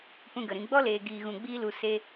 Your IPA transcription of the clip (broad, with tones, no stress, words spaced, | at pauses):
pũ˧ɡə˨ɾĩ˧ ɡ͡bɔ˦leː˨ ɡiː˨ɣũ˨ɡ͡biː˧lu˨ se˦